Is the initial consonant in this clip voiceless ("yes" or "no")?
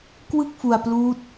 yes